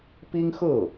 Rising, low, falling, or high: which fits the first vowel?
high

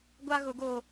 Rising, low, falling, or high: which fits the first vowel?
high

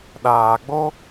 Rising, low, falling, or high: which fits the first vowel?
low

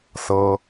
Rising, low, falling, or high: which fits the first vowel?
high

